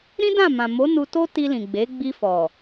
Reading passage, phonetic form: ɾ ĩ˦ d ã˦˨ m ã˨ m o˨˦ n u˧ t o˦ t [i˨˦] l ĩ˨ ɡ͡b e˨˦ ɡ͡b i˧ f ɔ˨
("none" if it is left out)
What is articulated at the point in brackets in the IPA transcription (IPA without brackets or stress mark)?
i˧